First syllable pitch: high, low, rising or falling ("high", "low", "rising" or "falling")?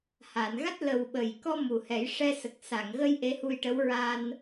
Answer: low